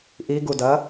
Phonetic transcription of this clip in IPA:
ʔiɡudɐ

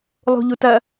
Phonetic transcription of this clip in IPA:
lˠṳʎutɐ

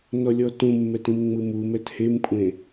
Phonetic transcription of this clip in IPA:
nɔlʲɔtũmːɛt ĩmŋ͡mɯmumɛt hemkʷʼẽ

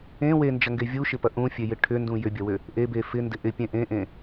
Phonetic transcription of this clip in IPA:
ẽ wend͡ʒɐŋɡe vʲuʃɪpɐ ʔũfʲejɪ ʈʰʏndũ jʏbʲɐwʏ | ʔebe fɪndɪ ʔɪpʲẽ ʔẽʔẽ

